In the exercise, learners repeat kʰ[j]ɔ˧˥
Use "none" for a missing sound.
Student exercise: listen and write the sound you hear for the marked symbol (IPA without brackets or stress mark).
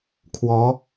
w